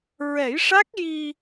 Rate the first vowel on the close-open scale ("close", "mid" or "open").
mid